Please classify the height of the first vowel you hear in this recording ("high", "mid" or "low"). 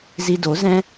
high